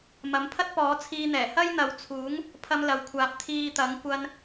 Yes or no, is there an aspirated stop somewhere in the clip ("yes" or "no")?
yes